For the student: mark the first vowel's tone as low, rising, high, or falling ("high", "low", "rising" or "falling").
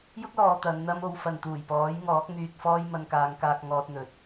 high